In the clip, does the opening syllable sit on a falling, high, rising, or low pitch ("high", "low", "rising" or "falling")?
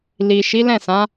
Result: low